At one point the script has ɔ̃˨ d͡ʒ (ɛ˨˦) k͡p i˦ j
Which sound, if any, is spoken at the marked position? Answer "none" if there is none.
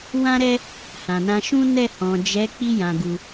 ɛ˨˦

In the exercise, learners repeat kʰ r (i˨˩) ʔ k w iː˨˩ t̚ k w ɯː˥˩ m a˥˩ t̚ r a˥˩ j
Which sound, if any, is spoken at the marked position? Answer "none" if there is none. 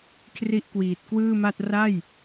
i˥˩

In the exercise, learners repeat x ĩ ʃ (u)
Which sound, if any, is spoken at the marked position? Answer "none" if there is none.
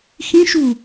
u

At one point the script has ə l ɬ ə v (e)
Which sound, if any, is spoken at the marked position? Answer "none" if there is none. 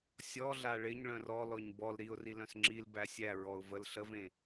ẽ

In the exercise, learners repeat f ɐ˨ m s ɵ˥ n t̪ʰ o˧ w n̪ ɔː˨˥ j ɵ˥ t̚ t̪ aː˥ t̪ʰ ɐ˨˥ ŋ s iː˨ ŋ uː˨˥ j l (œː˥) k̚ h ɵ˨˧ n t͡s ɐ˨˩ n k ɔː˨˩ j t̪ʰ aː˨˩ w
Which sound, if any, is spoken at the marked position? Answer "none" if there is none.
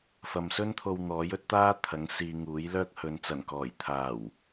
œː˥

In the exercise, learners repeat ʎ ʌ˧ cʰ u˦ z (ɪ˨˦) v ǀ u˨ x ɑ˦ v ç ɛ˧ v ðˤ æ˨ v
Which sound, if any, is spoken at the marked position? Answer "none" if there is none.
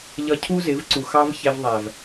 ɪ˨˦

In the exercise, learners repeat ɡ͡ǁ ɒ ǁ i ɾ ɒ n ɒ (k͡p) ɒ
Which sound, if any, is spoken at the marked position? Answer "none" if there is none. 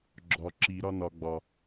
ɡ͡b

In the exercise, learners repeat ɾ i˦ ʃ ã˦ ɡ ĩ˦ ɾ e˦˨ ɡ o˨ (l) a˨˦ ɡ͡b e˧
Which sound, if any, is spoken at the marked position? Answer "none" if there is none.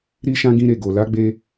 l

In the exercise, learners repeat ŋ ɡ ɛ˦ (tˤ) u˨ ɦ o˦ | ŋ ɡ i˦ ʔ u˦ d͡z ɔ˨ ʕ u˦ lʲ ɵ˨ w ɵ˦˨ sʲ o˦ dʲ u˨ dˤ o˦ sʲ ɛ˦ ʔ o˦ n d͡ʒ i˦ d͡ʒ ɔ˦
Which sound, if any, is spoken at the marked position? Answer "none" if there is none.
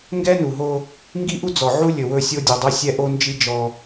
n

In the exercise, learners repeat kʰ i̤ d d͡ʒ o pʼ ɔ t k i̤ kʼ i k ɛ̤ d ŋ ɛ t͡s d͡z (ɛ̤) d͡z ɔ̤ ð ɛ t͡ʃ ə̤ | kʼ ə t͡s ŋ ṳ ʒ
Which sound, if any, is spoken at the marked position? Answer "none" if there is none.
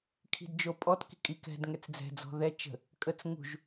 ɛ̤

